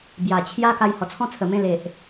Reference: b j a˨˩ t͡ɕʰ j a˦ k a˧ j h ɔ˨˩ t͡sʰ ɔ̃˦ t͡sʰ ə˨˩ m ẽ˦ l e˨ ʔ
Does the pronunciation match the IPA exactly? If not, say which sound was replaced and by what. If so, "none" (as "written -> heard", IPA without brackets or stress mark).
none